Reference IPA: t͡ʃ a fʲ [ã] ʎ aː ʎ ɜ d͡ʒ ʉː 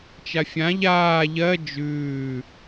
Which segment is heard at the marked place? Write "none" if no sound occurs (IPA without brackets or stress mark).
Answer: ã